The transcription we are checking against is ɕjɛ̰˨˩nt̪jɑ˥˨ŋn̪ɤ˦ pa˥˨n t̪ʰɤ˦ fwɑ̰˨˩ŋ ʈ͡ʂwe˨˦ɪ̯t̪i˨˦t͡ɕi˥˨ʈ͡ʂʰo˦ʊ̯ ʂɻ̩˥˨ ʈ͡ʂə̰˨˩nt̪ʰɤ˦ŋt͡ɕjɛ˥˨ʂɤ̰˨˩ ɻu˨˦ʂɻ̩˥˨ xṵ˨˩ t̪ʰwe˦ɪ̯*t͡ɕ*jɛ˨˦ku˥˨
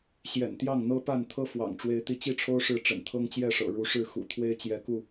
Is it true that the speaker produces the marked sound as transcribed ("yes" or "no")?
yes